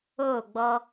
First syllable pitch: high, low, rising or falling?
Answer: falling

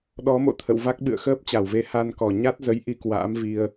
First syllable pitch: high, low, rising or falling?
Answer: rising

